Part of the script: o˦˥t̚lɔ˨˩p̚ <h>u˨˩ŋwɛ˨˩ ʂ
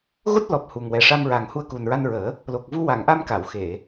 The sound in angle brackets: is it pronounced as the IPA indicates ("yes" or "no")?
yes